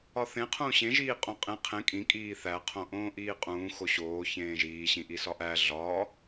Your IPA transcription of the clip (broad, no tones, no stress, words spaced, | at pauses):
ɒθẽ qʰũːɕẽʒiːqʼõ qʼẽ qʰẽ kʼĩkʼiː θæqʰõ ʔõːʔiːqʼũːxo ɕoː çẽːʒiːɕĩ ʔisɒʔæ ɮɒː